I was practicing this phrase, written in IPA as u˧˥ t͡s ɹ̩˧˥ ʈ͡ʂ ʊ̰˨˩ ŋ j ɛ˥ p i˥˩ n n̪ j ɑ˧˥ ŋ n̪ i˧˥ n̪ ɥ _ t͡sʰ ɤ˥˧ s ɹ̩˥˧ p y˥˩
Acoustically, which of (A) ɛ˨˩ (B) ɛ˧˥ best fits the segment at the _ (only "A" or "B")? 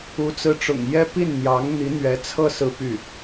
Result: B